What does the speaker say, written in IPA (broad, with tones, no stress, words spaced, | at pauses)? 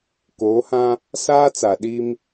koː˨˦hã˦ | saː˦t͡sa˨ɗi˦m